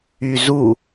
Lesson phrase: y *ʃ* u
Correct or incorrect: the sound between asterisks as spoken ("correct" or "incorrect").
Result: incorrect